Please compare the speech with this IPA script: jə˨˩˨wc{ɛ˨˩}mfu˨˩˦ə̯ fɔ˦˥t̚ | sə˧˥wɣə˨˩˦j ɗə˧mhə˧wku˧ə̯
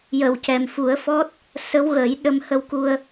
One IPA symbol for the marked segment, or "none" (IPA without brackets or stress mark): ɛ˨˩